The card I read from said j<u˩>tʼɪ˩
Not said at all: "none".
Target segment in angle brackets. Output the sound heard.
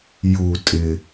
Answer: u˩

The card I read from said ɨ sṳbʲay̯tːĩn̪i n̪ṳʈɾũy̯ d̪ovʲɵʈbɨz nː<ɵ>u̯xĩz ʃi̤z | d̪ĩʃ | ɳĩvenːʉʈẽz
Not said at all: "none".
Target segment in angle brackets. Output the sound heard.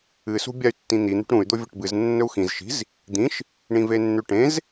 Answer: ɵ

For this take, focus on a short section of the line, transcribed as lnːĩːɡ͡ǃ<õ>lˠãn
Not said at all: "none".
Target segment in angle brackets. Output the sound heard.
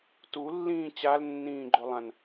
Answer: o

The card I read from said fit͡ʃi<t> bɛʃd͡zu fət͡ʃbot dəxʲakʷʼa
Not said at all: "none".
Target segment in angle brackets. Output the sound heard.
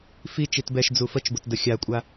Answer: t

